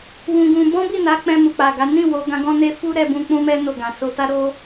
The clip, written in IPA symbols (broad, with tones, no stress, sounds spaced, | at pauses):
w ũ˧ ɡ ũ˧ b ɔ̃˦ b i˦˨ n a˨˦ k͡p ɛ̃˧ m u˨ k͡p a˨ ɡ a˨˦ n ĩ˦˨ w o˨˦ ɡ ã˧ ɡ ɔ̃˦ n e˦ f u˦ ɾ ɛ˧ b ũ˧ k͡p ũ˦ m ɛ˦ n o˦˨ ɡ ã˨ s o˧ t a˦ ɾ o˦